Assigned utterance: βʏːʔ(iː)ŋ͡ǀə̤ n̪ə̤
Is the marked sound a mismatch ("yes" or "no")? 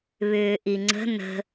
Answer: yes